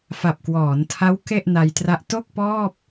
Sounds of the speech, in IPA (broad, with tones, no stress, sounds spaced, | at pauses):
f a˨˩ p̚ k w ɔː˩˦ n tʰ a˦˥ w k e˥˩ ʔ n a˧ j t r a˦˥ ʔ t o˥˩ k̚ p ɔː˥˩ p̚